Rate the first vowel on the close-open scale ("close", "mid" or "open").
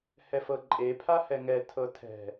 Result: mid